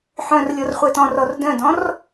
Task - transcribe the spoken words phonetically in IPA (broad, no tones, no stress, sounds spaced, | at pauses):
ħ œ̃ r lʲ ɔ r χʷ ɛ t ɔ̃ r ɔ r d œ̃ d ɔ̃ r